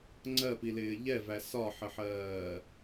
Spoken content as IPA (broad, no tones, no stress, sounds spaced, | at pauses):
ŋ͡ǀ ɜ p i l ɪː ʎ ɛ v æ s ɒ ħ ə ħ ɜː